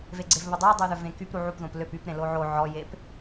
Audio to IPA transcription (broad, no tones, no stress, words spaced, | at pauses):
veɡ͡ǀevβədˤø dˤøðœvẽkyp ɾuʕupðõp løp ypɾẽ loʕo ʕɔjep